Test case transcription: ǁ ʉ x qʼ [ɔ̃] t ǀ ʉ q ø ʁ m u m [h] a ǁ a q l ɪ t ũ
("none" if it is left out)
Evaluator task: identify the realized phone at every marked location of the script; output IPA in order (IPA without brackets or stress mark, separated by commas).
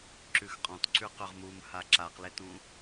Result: ɔ̃, h